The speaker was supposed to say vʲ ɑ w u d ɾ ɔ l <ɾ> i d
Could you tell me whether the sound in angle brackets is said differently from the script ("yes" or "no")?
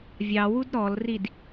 yes